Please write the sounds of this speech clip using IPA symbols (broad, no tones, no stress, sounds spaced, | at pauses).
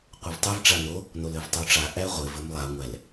qʷ ɘ v tˤ e v ʈ͡ʂ a n o | n o l ɘ v tˤ o ʈ͡ʂ a ʔ æ ʁʷ ɘ v ɘ m lˠ a ŋʷ æ l